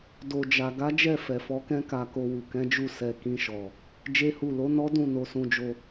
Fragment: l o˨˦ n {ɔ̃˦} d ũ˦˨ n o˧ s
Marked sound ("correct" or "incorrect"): incorrect